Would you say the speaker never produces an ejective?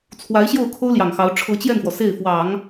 yes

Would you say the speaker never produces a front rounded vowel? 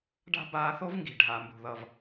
yes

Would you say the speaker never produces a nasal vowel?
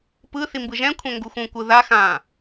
no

